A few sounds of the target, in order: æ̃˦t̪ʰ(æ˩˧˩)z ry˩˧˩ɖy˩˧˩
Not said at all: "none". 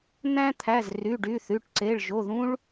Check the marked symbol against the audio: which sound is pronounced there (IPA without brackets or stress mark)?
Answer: æ˩˧˩